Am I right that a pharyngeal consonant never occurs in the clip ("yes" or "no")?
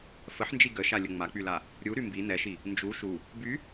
no